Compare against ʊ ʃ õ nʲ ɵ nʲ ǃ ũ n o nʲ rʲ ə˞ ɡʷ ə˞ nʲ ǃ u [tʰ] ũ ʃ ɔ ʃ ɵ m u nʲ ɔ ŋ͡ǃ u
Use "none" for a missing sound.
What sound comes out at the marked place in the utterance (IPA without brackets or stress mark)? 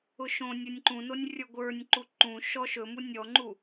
ǃ